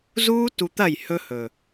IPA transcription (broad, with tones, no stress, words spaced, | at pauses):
zuː˦tu˧t̪ɐ˦˨j hɵ˦hɵ˨